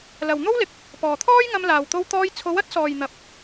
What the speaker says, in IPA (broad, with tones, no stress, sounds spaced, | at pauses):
l ɐ˨ w n̪ o˥ w l ɪ˨ k̚ | p ɔː˨ t̪ʰ ɔː˥ j ŋ ɐ˧ m l aː˨ w t̪ o˧ w t̪ ɔː˧ j t͡sʰ o˨˧ w ɐ˨˥ t̚ s ɔː˨ j n̪ ɐ˨ p̚